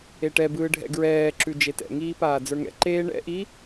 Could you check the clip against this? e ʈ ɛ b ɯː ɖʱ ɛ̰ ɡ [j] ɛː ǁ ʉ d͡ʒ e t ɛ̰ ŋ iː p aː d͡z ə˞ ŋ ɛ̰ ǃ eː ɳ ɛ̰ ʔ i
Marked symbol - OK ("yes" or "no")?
no